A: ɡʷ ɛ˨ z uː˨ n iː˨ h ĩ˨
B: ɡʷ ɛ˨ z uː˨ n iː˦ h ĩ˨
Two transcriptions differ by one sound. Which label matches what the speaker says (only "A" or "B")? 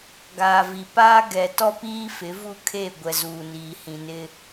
A